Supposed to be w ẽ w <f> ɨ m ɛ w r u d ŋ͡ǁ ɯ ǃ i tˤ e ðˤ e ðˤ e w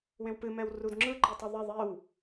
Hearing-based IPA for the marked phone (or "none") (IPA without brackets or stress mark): p